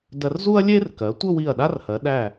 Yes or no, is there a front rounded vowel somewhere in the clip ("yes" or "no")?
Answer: no